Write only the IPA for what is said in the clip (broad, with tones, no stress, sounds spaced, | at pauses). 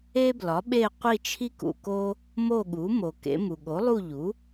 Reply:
e˦ b l ɒ˩˥ ɓ e˦˨ qʷ i˦˨ t͡ʃʰ i˦ k ṵ˨ k o˦ | m o˦˨ ɠ u˩˥ m o˨ k ḛ˩˥ m u˨ ɠ o˩˥ lˠ u˦˨ ʎ u˩˥